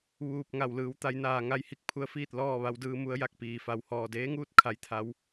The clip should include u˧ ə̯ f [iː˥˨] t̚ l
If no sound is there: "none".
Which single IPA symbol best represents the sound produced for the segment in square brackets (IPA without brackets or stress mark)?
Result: iː˥˨